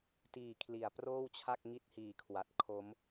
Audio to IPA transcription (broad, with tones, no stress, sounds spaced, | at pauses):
t iː˨˩ kʰ l i˩˦ a̯ p r oː˥˩ w t͡ɕʰ a˥˩ k̚ ŋ i˦˥ t̚ h iː˨˩ kʰ w a˨˩ t̚ kʰ o˦˥ m